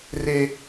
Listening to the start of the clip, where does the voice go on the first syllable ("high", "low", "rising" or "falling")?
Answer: high